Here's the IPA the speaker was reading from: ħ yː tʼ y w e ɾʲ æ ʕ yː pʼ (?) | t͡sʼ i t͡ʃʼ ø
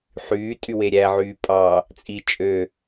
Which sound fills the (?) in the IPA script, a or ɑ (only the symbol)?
ɑ